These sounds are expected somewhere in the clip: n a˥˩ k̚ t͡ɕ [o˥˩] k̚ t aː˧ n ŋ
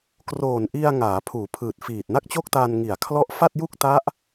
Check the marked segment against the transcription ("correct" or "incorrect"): correct